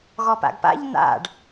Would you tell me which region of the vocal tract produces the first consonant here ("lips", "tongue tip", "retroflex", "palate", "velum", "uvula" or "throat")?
velum